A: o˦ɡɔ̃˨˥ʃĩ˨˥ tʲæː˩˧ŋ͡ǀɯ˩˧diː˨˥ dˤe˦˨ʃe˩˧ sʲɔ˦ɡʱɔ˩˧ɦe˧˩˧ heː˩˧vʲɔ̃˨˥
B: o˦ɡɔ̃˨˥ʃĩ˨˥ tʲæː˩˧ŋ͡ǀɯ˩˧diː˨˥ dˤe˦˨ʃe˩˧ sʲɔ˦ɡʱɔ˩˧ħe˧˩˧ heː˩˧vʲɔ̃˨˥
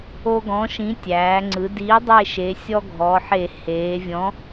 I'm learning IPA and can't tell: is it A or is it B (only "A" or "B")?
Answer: B